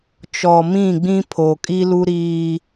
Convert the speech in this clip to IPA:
t͡ʃɔ˨mĩ˦˨ɡ͡bĩ˦ pʰoː˨kʼi˦lu˦ ɾiː˦

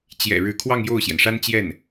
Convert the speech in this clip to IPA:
t͡ɕjɛ̰˨˩ ɻɻ̩˧˥kʰwɑ˥˧ŋ jo˥˩ʊ̯ɕjɛ˩nʂa˥n t͡ɕjɛ˥˩n

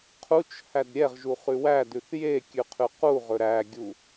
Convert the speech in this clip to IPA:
qʰut͡ʃ hædɾʲɛʁʒu χʉwædʉθ jekʲʉ qʰʉquʁɵ ɾæɡʲu

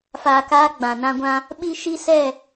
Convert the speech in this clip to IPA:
faː˧kaː˦ ɡ͡bã˨ nã˦ɡʷã˦ | ɓi˦ʃi˦sɛ˦˨

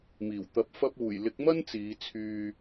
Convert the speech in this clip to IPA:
miː˨˩wt̪ɐ˨˥p̚ fɐ˧p̚uː˨˩jlɪ˨˥k̚mɐ˥n t͡siː˨˧ t͡sʰyː˨

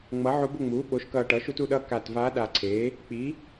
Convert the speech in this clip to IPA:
ŋ͡mʌ˩˥ʕo˧˥b o˥˨ŋ͡muː˩˥ ɓo˩˥ʃkʌː˨˩ʈʌː˩˥ʃ u˩˥tu˥˨ɗʌː˥˨ ka˨˩t vaː˧˥ɗa˨˩ǀʰeː˩˥ | k͡pi˩˥

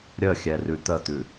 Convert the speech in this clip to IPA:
ɾʲəxʲɛ rʉt̪ət̪ʉ

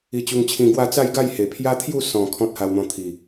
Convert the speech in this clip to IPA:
i˧t͡ɕu˧ŋt͡ɕʰĩ˧ɡwa˥˧ t͡sa˥˧jɡa˥˧j he˨˩pʰja˦t̪ʰju˥˧ sɔ̃˨˩ kʰɔ̃˦t̚ha˧wn̪ɔ̃˧ t̪ʰi˨˩

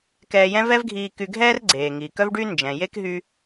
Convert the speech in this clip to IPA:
kɛː˧jɛ̃˥ vɛ˥vɡʱiː˧ky˧ɡʱɛː˥r ɡ͡ǀeː˩ŋi˩ kœ˥vɖy˥ nd͡ʒɛ̃˩je˥k ɦy˧

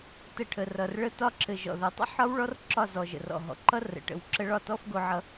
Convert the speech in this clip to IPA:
tə˧ʈʰə˨rʌ˨r ɭə˧tɒ˧ǁɘ˨ ʒɔ̰˨ðʌ˨tˤə̰˦ ħɒ˦w ɭɔ˦rǁɒ˦˨zɔ˨ ʒə̰˨rɔ̰˨ɦɔ̰˨ǃʌ˦ rə̰˨ ʈə̰˨w ǁə˧ɭɒ˦˨tɔ˦f ɡo˧ʕʌ˧

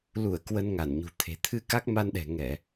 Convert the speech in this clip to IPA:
lu˧˩ə̯ kwə˧nŋa˧˩nɲṳ˨˩t̪ʰe̤˨˩ t̪ʰɨ˧ka˦˥k̚ma˧nɗɛ̤˨˩ ŋɛ˧˩˨

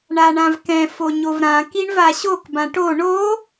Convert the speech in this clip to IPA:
ɳaɳãvkɛ̃ foɲovɾã kiɳvaɕok bãʈo ɳo

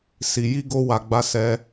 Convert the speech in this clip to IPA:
si˧ji˦ ɡo˦ wa˧ɡ͡ba˦ sɛ˦

